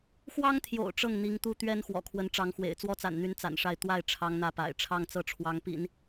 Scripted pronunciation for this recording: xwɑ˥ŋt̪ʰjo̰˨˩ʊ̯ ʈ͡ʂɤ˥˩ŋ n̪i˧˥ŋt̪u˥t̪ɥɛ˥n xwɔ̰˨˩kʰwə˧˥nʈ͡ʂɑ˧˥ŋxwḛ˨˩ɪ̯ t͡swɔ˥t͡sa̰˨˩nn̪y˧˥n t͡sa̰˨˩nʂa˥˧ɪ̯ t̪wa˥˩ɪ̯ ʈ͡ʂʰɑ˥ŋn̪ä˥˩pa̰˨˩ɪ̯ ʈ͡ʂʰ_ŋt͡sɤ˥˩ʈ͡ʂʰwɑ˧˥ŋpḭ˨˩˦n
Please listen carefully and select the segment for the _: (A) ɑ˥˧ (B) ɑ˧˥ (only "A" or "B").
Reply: A